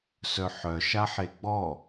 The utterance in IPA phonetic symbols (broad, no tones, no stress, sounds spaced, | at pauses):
s œ ħ œ ʃ a ħ e ɡ͡b ɔ